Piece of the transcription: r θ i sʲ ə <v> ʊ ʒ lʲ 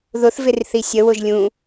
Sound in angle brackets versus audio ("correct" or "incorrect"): incorrect